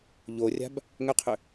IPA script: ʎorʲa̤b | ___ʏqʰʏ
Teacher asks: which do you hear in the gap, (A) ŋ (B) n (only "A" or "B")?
A